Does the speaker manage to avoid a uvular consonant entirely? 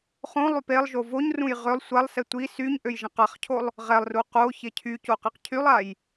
no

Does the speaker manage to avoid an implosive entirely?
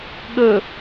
no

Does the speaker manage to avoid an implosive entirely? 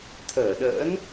no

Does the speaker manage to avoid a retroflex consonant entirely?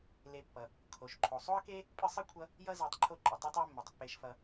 yes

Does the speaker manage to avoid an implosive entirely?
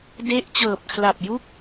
yes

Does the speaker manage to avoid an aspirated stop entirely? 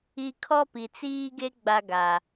no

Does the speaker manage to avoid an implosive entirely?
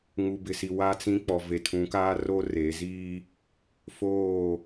yes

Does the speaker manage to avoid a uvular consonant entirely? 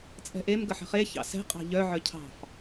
no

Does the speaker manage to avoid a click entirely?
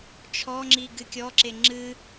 no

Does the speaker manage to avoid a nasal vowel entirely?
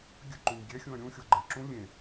no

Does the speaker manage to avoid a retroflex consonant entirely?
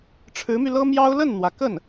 no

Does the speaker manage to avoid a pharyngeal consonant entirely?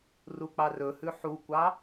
no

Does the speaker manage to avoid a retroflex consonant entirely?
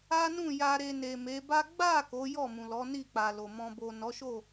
yes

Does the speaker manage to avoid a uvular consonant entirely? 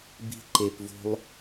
yes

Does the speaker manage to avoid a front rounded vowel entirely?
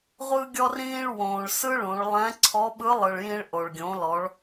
yes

